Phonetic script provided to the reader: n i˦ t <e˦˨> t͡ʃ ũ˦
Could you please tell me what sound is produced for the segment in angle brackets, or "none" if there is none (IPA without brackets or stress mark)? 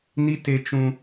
e˦